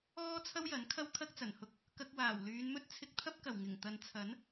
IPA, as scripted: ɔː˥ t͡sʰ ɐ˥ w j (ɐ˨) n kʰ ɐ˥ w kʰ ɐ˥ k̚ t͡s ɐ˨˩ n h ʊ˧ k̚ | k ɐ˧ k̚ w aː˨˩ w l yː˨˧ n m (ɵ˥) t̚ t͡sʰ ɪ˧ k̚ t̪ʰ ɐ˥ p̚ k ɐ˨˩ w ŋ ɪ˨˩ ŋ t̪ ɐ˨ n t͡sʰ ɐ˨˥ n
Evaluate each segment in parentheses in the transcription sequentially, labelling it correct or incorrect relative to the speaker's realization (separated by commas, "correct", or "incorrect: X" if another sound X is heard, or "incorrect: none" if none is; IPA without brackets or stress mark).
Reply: incorrect: ɐ˨˥, correct